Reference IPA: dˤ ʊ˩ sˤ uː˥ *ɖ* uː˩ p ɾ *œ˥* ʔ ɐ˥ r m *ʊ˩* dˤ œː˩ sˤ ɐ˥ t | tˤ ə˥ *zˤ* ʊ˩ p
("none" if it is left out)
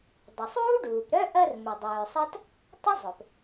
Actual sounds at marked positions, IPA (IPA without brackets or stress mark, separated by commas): ɖ, œ˥, ʊ˩, zˤ